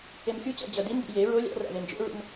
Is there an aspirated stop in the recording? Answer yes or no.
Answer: no